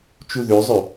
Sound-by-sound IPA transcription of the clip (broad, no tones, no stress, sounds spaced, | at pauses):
t͡ʃ u ð ø zˤ ø